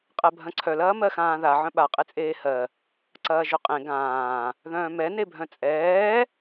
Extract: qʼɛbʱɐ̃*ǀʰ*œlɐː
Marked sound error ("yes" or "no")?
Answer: no